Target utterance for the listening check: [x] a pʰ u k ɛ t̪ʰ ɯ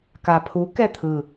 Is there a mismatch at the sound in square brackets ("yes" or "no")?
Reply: yes